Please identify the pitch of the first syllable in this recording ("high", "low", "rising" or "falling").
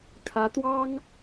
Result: rising